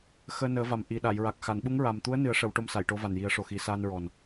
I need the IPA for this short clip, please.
x əː˧ n əː˨˩˦ v a˨˩ m ʔ i˨˩ ɗ a˨˩˨ j ɹ a˨˩ k̚ x a˨˩˨ n ɓ u˧˥ ŋ ɹ a˨˩ m t̪ u˧˥ ə̯ n ɨ˨˩˦ ə̯ ʂ ə˨˩˦ w ʈ o˧˥ m s a˨˩˨ j ʈ o˧˥ v a˨˩ n j i˨˩˦ ə̯ ʂ o˨˩ x i˨˩˦ s aː˧ n ɹ ɔ˨˩ n

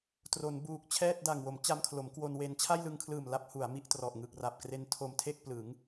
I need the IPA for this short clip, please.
t r o˩˦ n b uː˨˩ k̚ t͡ɕʰ ɛː˥˩ t̚ d a˨˩ ŋ w o˩˦ m t͡ɕ a˧ m kʰ l o˩˦ m k w o˧ n w e˧ n t͡ɕʰ a˥˩ j l ɯ˧ ŋ kʰ l ɯː˨˩ m l a˦˥ p̚ h u˩˦ a̯ m i˥˩ ʔ t r ɔ˨˩ ʔ ŋ ɯ˨˩ k̚ r a˨˩ p̚ k r e˧ n tʰ o˧ m tʰ e˥˩ k̚ p l ɯ˩˦ ŋ

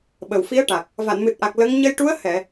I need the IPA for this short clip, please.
ɓ ə˨˩ w f i˧˥ ə̯ ʈ a˨˩ k̚ | v a˨˩˨ n m ɨ˨˩ t̚ ʔ a˨˩ k̚ l ə˧˥ ŋ ɲ ə˧ j ʈ u˧˥ ə̯ h ɛ˨˩˨

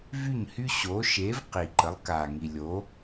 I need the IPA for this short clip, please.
v y˦˨ ɲ h y˦ ɕ o˨˦ ʃ e˨˦ v q i˨ ǃ ə˨˦ lˠ k a˨ ŋ i˨ lʲ o˨˦

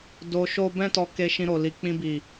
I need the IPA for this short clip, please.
d o˧ ʃ o˦ b ɛ̃˦ t ɔ˧ k e˧ ʃ ĩ˧ ɾ o˨ l i˨ k͡p ĩ˧ b i˨

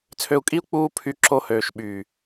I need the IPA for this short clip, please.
t͡sʰ ø˧ u̯ kʼ i˦ u̯ k͡p uː˦ pʰ y˧ ǁ o˧ h øː˨ ʃ ɓ yː˨

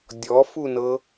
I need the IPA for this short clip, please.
dʲ ɔ f u n ɤ

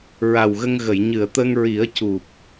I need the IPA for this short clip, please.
ɹ a˨˩ w ɣ ə˧ ŋ ɣ ə˨˩˨ j ɲ ɨ˨˩˨ ə̯ t̪ ə˧ ŋ ɹ i˨˩˦ ə̯ c u˨˩ p̚

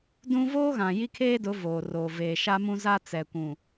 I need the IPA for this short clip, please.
d ũ˦ v oː˦ ɣ ã˨ j i˦ kʰ eː˦ d ʊ˨˦ v oː˨ r oː˨ v eː˨ ʃ a˦ m ũ˦ z a˦ t͡s ɛ˨ kʷ ũ˨

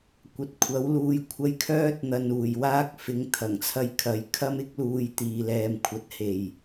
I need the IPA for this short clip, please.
kʷ ɐ˨ t̚ kʷʰ ɐ˨˥ w l uː˧ j kʷʰ ɐ˧ j kʰ œː˥ t̚ n̪ ɐ˨ n uː˨˩ j w aː˥ k̚ f ɪ˨˧ ŋ t̪ʰ ɐ˨˩ ŋ t͡sʰ ɐ˧ j kʰ ɐ˨˧ j kʰ ɐ˥ m ɪ˥ k̚ l uː˧ j t̪ iː˧ l ɛː˧ m kʷʰ ɐ˧ t̚ h e˨˩ j

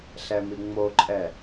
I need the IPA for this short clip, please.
ɬ ɛ m i ŋ͡m o ǃʼ ɛ

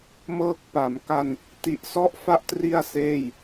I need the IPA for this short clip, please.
m ɤː˦˥ k̚ p a˩˦ m k a˧ n | t i˨˩ ʔ s ɔ˦˥ ʔ f a˦˥ ʔ t r i˥˩ a̯ s eː˥˩ j

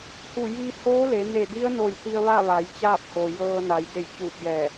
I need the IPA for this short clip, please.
h u˧˩ j i˧ h oː˧˥ l e˩˧ n e˧˩ d i˧˥ ə̯ n o˧˩ j t̪ i˧ ə̯ ʋ a˥˨ ʋ a˩˧ j t͡ɕ aː˥˨ p̚ h o˩ j ɤː˧ n a˩˧ j d e˧˩ j t͡ɕ uː˧˩ p̚ j ɛː˧˩

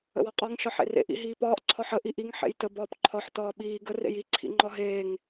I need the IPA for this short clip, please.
ə̰ w ɒ qʼ ɒ ŋ ʃ ɒ ħ ḛ r ḛ ʔ ḭ ɦ iː p ɒː ʔ ǀʰ ɒ ħ ə ʔ i ʔ i ŋ ħ ḛ j t ə b ɒː p ǃʰ ɒ ħ t ɒː ɓ iː ɡ ə r ḛ j i ǀʰ ḭ ŋ͡ǃ ɒ ɦ eː ŋ

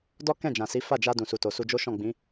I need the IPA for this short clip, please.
d ɔ˦ k ɛ̃˦˨ d͡ʒ ã˨ s i˨˦ f a˦˨ d͡ʒ a˧ d ũ˨ s u˨ t o˨ s u˧ d͡ʒ o˦ ʃ ɔ̃˦˨ ɡ͡b ĩ˨˦

